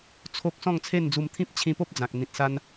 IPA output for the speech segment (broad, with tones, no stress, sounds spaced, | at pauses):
t͡sʰ o˦ k̚ s ɔ̃˥˧ ŋ t͡sʰ e˥˧ n d͡z u˧ m t̪ʰ ĩ˦ p̚ t͡ɕʰ ĩ˧ p o˦ p̚ d͡z ã˨ k̚ n̪ ĩ˨ t̚ s a˧ n